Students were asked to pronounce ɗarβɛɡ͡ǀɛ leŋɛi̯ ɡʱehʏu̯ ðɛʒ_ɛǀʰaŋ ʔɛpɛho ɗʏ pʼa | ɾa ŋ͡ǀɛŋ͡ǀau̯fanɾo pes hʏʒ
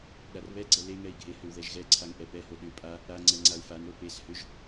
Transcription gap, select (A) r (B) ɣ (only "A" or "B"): B